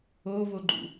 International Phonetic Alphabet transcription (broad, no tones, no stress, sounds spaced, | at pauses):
o v o ɡ͡ǃ ṵ